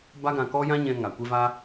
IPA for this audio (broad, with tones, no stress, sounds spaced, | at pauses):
b a˦ ɡ ã˧ k ɔ˦ j ã˦ ɲ ɛ̃˧ ŋ a˨ kʷ e˧ v a˧